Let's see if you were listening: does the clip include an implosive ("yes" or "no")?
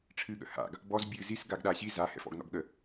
yes